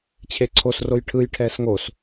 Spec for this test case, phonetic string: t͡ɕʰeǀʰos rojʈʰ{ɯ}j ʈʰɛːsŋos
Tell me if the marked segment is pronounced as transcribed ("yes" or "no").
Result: yes